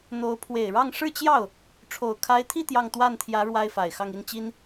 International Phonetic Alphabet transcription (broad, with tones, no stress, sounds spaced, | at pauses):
n̪ o˧˥ ʊ̯ pʰ w e˨˩ ɪ̯ ɻ ɑ˥˧ ŋ ʂ ɻ̩˥˧ t͡ɕ j ɑ˥˩ ʊ̯ | ʈ͡ʂʰ o˨˩ ʊ̯ kʰ a˧˥ ɪ̯ t̪ʰ i˥˧ t̪ j ɑ˥˧ ŋ t̪ w a˥˩ n t̪ʰ j ä˧˥ ɻ w a˥ ɪ̯ f a˨˩ ɪ̯ x ɑ˥˧ ŋ i˥˩ n t͡ɕ i˥ n